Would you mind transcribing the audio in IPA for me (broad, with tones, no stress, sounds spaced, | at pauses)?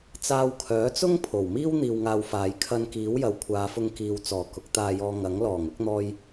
t͡s aː˧ w kʰ œː˨˥ t͡s ʊ˥ ŋ pʰ o˨˩ w m iː˥ w n̪ iː˧ w ŋ aː˧ w f aː˨˧ j kʰ ɐ˧ n k iː˨˥ w j ɐ˨˥ w kʷʰ aː˨˧ f ʊ˧ ŋ k iː˨ w t͡s ɔː˨˩ k ʊ˨˥ k̚ t̪ aː˧ j ɔː˧ ŋ ɐ˨˥ ŋ l ɔː˨˩ ŋ ʊ˨˥ k̚ n̪ ɔː˧ j